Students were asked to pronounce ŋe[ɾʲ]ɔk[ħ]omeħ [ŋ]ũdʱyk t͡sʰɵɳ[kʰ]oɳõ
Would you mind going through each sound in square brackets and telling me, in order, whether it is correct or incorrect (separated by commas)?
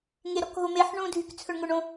incorrect, incorrect, incorrect, incorrect